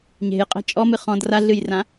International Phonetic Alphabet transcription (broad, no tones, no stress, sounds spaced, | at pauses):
ɲ e̤ j qʼ ɛ̤ t͡ʃʼ ɔ m ɨ χ ɔ̃ d r a ɮ ɨ j r ã